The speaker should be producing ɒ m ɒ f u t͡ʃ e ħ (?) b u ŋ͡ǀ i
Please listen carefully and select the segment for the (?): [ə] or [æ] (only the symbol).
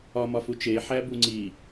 æ